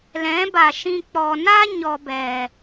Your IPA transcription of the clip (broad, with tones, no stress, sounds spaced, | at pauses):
l ɛ̃˨˦ b a˨ ʃ ĩ˧ k͡p ɔ˨ n a˦ ɲ ɔ˧ b ɛ˨